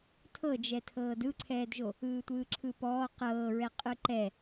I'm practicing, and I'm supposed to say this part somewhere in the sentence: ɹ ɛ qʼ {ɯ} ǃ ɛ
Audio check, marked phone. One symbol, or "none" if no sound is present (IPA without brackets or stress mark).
ɯ